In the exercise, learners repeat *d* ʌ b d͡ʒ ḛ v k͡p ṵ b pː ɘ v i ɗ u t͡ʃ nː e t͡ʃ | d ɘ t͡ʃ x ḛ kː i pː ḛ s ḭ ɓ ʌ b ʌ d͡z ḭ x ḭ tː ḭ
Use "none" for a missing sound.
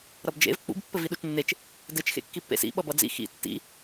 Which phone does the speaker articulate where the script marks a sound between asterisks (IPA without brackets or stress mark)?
ɾ